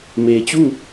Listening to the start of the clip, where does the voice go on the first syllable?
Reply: low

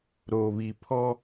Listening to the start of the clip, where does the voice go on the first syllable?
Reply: low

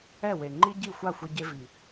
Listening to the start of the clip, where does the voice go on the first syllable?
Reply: falling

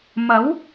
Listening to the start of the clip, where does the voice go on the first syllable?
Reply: rising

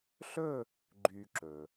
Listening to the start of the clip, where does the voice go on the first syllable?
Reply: falling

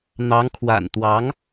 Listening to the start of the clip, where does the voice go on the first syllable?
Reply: rising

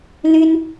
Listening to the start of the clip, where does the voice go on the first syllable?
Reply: high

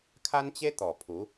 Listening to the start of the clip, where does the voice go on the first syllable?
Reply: high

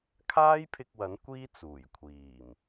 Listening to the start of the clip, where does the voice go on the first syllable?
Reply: high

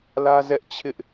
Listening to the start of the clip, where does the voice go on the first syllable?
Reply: high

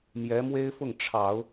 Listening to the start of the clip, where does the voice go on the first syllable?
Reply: rising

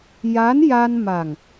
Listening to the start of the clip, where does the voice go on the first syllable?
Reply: rising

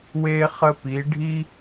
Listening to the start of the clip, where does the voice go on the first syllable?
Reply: high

